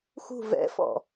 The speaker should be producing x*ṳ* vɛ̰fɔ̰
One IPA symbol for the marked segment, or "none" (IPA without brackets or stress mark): ṳ